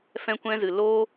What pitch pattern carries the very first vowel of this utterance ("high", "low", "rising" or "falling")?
high